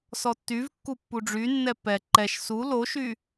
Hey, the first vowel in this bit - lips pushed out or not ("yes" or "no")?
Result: yes